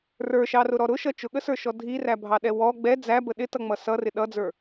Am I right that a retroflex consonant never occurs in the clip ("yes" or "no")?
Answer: yes